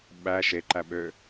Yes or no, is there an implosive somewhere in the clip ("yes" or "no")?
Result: yes